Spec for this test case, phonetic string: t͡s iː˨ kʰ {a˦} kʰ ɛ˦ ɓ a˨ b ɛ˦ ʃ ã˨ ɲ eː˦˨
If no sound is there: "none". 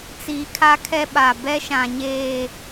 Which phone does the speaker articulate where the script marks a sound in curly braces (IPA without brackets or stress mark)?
a˦